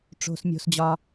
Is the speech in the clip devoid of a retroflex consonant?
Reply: no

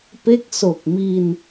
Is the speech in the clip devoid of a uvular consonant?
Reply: yes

